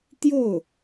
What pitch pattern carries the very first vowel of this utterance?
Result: falling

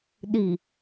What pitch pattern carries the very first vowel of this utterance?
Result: low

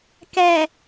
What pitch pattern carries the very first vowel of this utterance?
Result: low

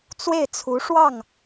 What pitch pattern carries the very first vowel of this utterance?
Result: falling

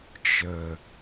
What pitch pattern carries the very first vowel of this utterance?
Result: low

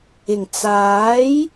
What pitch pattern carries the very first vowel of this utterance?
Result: low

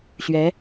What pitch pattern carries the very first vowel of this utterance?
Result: rising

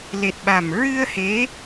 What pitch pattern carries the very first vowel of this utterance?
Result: low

